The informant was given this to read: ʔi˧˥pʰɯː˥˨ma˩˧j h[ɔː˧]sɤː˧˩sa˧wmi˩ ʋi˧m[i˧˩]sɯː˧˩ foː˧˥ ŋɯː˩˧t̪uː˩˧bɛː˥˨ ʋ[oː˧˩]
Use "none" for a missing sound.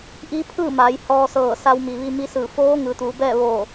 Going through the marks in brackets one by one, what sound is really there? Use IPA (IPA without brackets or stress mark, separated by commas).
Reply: ɔː˧, i˧, oː˧˩